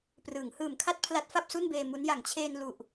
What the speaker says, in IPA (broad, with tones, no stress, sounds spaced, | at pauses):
p r ɯː˩˦ ŋ h ɯː˨˩ m kʰ a˥˩ t̚ pʰ l a˦˥ t̚ f a˥˩ p̚ s u˥˩ n b eː˧ m u˦˥ n j a˩˦ ŋ t͡ɕʰ eː˧ n l u˨˩ ʔ